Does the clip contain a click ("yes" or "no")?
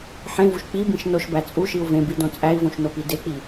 no